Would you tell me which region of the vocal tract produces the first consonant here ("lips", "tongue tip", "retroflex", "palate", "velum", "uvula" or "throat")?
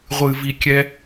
uvula